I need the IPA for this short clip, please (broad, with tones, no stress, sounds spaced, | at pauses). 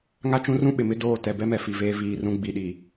ŋ a˦ t͡ʃ ũ˦ r ũ˦ ɓ ɪ˨ m ɪ˦ d oː˦˨ t ɛ˨ b ɛ˦ m ɛ˨ f i˨ v eː˦ v iː˦˨ r ũ˦ ɡ͡b i˨ ɗ i˨